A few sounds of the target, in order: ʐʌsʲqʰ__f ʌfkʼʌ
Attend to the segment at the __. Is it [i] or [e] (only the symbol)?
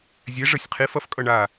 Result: i